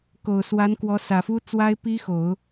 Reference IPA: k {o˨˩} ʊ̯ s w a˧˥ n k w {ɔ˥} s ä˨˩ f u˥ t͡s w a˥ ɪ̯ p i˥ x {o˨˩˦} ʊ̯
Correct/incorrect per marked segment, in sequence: correct, incorrect, correct

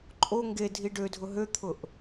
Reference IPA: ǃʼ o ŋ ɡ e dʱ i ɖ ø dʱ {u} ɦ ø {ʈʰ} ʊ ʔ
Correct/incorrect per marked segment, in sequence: incorrect, incorrect

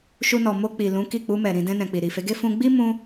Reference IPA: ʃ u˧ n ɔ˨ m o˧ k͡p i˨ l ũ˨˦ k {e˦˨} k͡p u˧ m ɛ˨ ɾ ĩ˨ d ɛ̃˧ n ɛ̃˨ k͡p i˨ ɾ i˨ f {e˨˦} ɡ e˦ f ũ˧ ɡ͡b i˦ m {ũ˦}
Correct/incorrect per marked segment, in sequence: incorrect, correct, incorrect

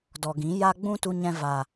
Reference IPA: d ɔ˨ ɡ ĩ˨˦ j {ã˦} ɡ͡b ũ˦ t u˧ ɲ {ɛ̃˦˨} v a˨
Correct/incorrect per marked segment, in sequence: incorrect, incorrect

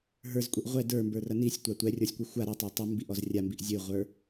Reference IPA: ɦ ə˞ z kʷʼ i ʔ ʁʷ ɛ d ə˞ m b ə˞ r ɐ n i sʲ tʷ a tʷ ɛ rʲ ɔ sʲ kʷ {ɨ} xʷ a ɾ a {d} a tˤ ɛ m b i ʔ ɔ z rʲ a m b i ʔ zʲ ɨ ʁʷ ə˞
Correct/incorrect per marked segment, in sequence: correct, incorrect

